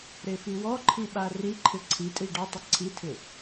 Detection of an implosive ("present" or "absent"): present